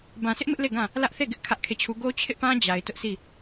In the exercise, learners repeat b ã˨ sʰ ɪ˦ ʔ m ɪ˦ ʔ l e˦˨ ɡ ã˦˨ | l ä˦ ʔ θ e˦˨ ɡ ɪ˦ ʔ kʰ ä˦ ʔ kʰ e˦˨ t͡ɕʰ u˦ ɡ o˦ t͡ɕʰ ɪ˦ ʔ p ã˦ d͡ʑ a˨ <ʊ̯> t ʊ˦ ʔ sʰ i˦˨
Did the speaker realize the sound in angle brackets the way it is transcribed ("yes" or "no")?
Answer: no